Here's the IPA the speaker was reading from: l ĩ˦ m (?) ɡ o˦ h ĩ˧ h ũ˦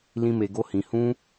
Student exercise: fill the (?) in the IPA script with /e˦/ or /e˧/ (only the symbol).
e˧